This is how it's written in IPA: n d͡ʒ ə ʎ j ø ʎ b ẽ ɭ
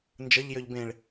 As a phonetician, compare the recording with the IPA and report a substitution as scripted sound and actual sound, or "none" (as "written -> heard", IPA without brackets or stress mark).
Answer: none